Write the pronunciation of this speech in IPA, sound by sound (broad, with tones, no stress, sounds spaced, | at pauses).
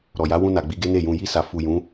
ɾ ɔ˨ j a˨˦ w ũ˧ n a˨ ɡ͡b i˨˦ ɡ e˦ n e˦˨ j ũ˧ j i˧ s a˨ f u˨ j ũ˨˦